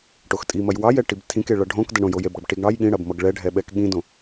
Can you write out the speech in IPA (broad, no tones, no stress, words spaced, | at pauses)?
ʈoxtʼimɐj wɑjɛ ʈibtʰĩke ɭʌɖʱõkdɐ ɳõjojebɽʌb ʈiɡɳɑj ɠĩɽɐbmʌɡ ɭɛɖʱɛɓɛk ɠĩdõ